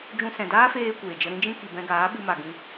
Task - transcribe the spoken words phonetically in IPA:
d͡ʒ ũ˧ s ɛ̃˨ d aː˦ f eː˦ kʷ eː˨ d͡ʒ ə˧ ɾ ĩ˦ d͡ʒ ĩ˦ k i˨ b ɛ̃˧ ɡ aː˨˦ ɓ ɨ˧ m a˨ ɡ ĩ˧

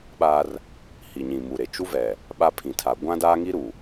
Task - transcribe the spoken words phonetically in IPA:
ɓ aː˦ r | h i˨ ɲ ĩ˨ m u˨ ɾ e˨ t͡ʃ u˦ v ɛ˨ | ɓ a˦ pʰ ĩ˨ tʰ a˨ ɡʷ ã˦ d aː˦ ŋ i˦ ɾ u˨

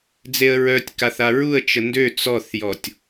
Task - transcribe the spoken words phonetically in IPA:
d͡z e ə̯ ɹ œ tʲ k a θ a ɹ u ə̯ t͡ʃ ə n d ø t͡s ɔ θ j ɔ tʲ

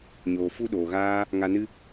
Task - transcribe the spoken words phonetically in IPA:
ɲ oː˨ f u˧ ɗ oː˨ ɣ aː˦ | ŋ a˧ n ɨ˦

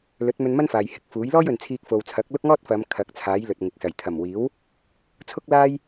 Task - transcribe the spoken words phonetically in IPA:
l ɵ˨˥ t̚ m ɵ˧ n m ɐ˥ n f aː˨ j h ɪ˨ k̚ f uː˨˥ j l ɔː˥ j ɵ˨ n t͡sʰ iː˧ k̚ f o˨ w t͡sʰ ɐ˨˥ k̚ l ʊ˥ k̚ ŋ ɔː˥ t̚ f ɐ˨˧ m kʰ ɐ˨˥ k̚ t͡sʰ aː˨˥ j l ɵ˨ t̚ ŋ ɪ˨ k̚ s ɐ˨˩ j t̪ʰ ɐ˨˩ m w iː˨˥ w | t͡sʰ ʊ˥ k̚ l aː˥ j

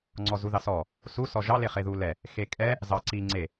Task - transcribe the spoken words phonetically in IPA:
ŋ͡ǀ ɔ z u ð ɑ s ɔ | s u s ɔ ʒ ɑ l e χ e ð u l ɛ | x e kʼ ɛ | z ɑ ǀ i ŋ͡ǀ e

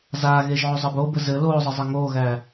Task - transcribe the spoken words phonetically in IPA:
z aː ɣ e ʒ ʕ o zˤ ɘ b o b ɘ z ɘ l oː zˤ ɘ zˤ ɘ ŋ oː ɣ æ

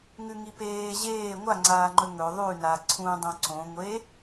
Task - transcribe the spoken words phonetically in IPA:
ŋ ʉ ŋ i p eː ʑ eː ŋʷ a ŋ͡ǀ aː ŋ͡ǃ ɵ ŋ ɵ ðˤ ʉ n a ǀʰ ũ dˤ õ ǀ õ ŋʷ e

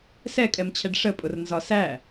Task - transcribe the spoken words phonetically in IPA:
s ɛ kʼ ɛ m t͡ɕʰ ɛ ɖ ʂ ə pʼ ʊ r n z ɒ s æ

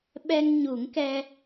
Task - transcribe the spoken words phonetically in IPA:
ɓ ɛ˧ ŋ ɲ u˨˩˦ ŋ k ɛ˧

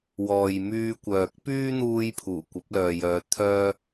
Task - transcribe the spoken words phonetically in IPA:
w ɔː˨ j m yː˧ kʷ œː˨ k̚ p yː˥ n̪ uː˧ j pʰ uː˨˩ kʷ ɐ˨˥ p̚ l œː˨ j œː˨˧ t̪ʰ œː˧

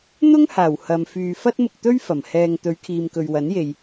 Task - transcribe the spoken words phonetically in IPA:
n̪ ʊ˥ ŋ h aː˨˩ w h ɐ˨ m f yː˨ f ɐ˥ t̚ m ʊ˧ k̚ t̪ ɵ˥ ɥ f ɐ˨˩ m h ɛː˨ ŋ t̪ ɵ˨˧ ɥ kʰ iː˨ m k ɵ˨ ɥ w ɐ˨˥ n j e˨ j

